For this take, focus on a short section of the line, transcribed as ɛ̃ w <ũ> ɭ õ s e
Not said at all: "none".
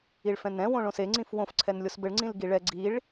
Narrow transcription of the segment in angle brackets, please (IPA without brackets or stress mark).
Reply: õ